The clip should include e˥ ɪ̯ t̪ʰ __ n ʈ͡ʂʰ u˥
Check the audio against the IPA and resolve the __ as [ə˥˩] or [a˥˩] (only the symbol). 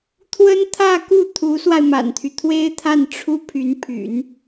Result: a˥˩